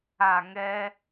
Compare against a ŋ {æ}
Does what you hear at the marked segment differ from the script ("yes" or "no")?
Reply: yes